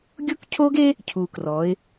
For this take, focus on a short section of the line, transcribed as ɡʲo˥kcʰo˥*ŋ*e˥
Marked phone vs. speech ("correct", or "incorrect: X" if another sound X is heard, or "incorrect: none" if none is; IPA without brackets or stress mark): incorrect: ɡ